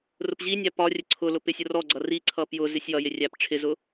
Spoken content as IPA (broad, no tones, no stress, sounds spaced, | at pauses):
r ʊ p ʑ i nʲ æ p ɒ rʲ ə ǀʰ ʊ l ʊ p ɪ sʲ ʊ r ɔ ɡ͡ǀ ʌ r i ǀʰ ʌ p j ʊ z ɪ sʲ j ʌ j ɪ rʲ æ p ʈ͡ʂʰ ɪ z ʊ